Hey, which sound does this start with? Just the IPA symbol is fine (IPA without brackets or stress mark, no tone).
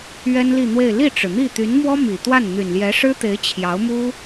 ɥ